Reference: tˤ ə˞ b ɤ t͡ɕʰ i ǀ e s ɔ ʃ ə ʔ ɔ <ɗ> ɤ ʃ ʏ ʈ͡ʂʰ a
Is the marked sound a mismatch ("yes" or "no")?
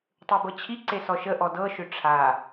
yes